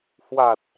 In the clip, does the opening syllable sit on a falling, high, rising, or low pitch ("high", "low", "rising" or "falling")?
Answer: low